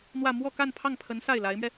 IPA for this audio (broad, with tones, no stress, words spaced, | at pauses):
n̪wä˥˧ mwɔ˥˧ka˥˧n pʰɑ˥˩ŋpʰə˧˥n sa˥˩ɪ̯la˧˥ɪ̯mɥɛ˧